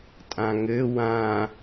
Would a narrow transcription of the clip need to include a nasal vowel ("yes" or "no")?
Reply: yes